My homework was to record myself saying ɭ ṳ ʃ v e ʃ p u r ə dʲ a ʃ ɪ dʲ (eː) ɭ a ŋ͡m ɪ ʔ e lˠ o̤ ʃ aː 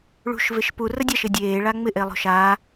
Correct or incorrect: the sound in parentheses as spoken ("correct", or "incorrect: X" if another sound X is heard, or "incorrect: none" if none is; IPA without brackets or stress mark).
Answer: correct